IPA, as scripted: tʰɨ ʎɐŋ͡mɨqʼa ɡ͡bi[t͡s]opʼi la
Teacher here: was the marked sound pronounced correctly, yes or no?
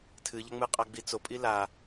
yes